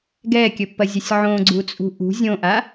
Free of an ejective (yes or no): no